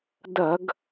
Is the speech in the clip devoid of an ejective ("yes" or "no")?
yes